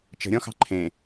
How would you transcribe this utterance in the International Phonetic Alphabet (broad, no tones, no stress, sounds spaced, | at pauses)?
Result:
t͡ʃ ə̤ ɾʲ ɔ̃ x ɑ̤ ǃʰ ẽ